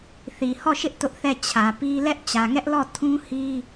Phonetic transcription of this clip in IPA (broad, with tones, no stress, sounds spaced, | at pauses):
θ i˨ h ɔ˦˨ ʃ ɪ˦ ʔ t ʊ˦ ʔ θ ɛ˦˨ t͡ɕʰ ä˨ p i˦ l ɛ˦ ʔ t͡ɕ ä˨ ŋ ɛ˦ ʔ l ɔ˦˨ tʰ ũ˦ h i˦